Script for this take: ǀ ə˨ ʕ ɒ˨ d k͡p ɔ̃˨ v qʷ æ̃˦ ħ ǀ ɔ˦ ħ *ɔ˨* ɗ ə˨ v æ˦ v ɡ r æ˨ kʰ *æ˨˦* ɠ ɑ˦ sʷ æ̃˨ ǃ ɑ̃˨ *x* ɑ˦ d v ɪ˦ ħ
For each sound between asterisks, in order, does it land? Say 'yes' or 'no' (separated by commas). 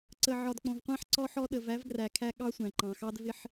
no, no, yes